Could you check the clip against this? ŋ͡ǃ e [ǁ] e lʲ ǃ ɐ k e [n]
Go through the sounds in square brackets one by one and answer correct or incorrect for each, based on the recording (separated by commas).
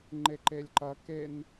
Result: incorrect, correct